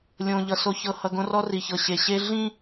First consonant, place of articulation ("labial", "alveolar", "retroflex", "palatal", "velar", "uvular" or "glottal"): alveolar